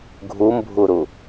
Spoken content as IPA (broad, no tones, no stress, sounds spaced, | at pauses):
ɡʱ u m bʱ u ɾ u